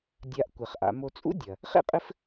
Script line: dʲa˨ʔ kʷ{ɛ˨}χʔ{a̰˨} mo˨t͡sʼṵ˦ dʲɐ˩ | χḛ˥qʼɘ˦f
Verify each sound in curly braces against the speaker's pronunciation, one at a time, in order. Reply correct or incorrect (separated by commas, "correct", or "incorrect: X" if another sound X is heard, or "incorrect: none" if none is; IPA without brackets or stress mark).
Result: incorrect: ɛ˩, correct